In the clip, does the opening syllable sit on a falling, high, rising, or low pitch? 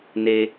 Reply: high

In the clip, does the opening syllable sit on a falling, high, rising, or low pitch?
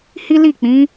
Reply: high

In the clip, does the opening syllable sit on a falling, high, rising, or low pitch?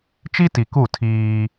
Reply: high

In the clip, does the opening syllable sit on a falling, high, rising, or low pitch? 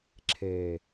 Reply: low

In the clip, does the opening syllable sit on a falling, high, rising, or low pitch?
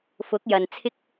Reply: rising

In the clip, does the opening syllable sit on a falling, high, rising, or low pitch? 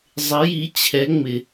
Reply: rising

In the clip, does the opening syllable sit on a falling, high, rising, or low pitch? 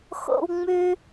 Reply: high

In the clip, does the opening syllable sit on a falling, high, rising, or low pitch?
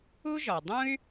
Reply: high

